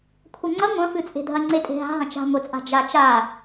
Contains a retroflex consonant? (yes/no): no